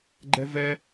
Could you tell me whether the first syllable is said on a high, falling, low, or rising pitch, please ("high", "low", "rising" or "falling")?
high